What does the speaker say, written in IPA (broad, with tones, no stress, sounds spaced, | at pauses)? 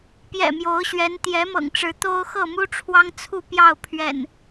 p j ɛ̰˨˩ m j o˨˦ ʊ̯ ɕ ɥ ɛ˨˦ n t̪ j ɛ˨˦ m ɤ̰˨˩ ŋ ʈ͡ʂ ɻ̩˨˦ t̪ o˦ ʊ̯ x ɤ˥˨ m u˦ ʈ͡ʂʰ w ɑ˦ ŋ t͡sʰ u˥˨ p j ɑ˥˨ ʊ̯ pʰ ɥ ɛ̰˨˩ n